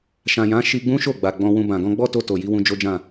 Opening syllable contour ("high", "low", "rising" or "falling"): low